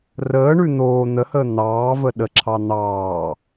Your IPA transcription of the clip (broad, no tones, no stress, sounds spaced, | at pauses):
r əː ɳ ʉ n̪ oː n̪ ə h əː n̪ ɑː v ə ɗ ə ǁʰ ɑ n̪ ɑː